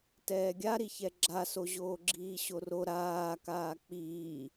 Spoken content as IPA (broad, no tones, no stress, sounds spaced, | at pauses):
t ɛː ɡʲ a ɾ i ç ɛ ɡ͡ǁ a s o ʑ oː ɡ͡ǁ iː ɕ o r o ɾ aː k aː k͡p iː